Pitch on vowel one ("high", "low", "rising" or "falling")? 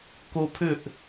high